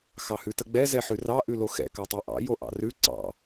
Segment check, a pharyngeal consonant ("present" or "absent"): present